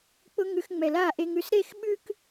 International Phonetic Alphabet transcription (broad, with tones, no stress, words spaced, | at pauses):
k͡pʊ˦ ŋʉ˧x ŋ͡mɛ˨la˦˨ʔe˧ŋʉ˧s ɾe˦˨xɓʉ˦k